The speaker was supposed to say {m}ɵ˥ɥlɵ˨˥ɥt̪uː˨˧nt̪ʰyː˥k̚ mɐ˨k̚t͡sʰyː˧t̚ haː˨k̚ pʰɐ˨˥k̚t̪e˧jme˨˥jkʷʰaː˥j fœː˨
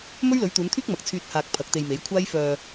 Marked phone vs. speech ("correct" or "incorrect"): correct